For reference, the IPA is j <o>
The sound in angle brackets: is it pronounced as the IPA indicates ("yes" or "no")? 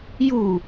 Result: no